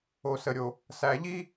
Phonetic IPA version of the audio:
o˨ s ə˨ ɾʲ o˨ | s æ˨ ʎ i˦

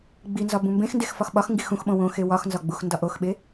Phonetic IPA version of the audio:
ɡ͡b i n z ɒ b ũ m b ẽ x n d e x f ɒ x ɓ ɒ x ŋ ɡ i x ũ x ɓ õ w õ x e w ɒ x n z ɒ ɡ͡b u x n d ɒ ʔ o x ɓ e

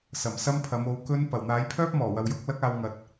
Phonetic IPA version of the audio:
s ɐ˨˩ m s ɐ˥ m pʰ ɐ˨˧ m o˨˧ w k ɵ˥ n p ɐ˨˩ w n̪ aː˨˥ j pʰ œː˥ p̚ m ɔː˨˩ w ɐ˨ w j ʊ˧ k̚ l ɐ˥ k̚ aː˧ w ŋ ɐ˨ t̚

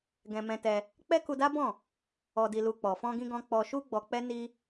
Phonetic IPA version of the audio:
ɡ ɛ̃˧ m ɛ̃˧ t ɛ˧ | k͡p ɛ˦ k u˧ d a˦ b ɔ̃˦˨ | ɔ˧ d i˧ l u˧ k͡p ɔ˧ f ɔ̃˦ ɡ ĩ˦ ɡ ɔ̃˧ k͡p ɔ˧ ʃ u˦ ɡ͡b ɔ˧ k͡p ɛ˦ n i˧

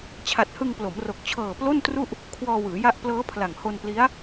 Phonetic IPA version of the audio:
t͡ɕʰ a˨˩ t̚ h ɯ˧ ŋ p l o˩˦ m r o˨˩ k̚ t͡ɕʰ ɤː˨˩ p l o˥˩ n t r u˥˩ ʔ | kʰ w ɔː˧ w ɯː˩˦ j a˦˥ ʔ p l ɤː˦˥ pʰ l a˨˩ ŋ h o˧ n p l i˦˥ a̯

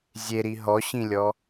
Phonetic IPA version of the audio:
zʲ e ɾ i ɦ ɔ ɕ ĩ lʲ ɔ

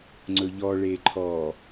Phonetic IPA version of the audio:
ŋ͡ǀ ɵ ʎ ɔ ɭ e ǃʰ ɔ

